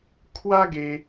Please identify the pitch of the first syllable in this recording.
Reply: high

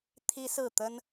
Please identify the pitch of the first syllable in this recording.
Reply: high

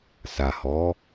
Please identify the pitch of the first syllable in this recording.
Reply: low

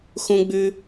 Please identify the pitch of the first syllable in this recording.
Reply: high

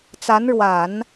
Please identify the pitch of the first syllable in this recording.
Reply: rising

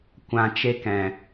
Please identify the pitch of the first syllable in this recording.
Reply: high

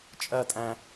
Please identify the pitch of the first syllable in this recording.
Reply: falling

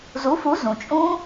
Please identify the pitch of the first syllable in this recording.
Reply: rising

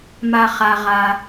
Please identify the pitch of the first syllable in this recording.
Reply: low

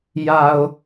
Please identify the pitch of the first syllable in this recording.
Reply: low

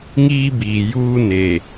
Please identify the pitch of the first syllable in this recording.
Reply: high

